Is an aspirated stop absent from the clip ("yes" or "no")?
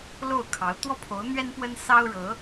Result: no